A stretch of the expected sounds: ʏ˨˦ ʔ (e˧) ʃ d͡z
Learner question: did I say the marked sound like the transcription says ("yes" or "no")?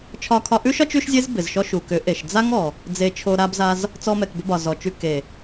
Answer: no